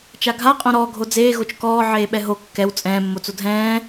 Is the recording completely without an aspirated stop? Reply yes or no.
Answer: yes